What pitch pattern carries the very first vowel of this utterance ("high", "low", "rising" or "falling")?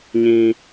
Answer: high